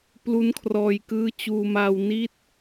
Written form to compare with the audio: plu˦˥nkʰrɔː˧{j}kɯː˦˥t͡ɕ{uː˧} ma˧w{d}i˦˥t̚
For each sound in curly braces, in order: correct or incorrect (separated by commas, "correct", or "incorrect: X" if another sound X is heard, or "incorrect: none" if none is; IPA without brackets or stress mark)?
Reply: correct, correct, incorrect: n